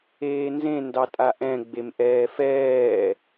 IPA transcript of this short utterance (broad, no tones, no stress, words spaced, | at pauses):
eːnzẽ ndɑtʼaʔɛ̃ ɡ͡bemʔɛːfɛː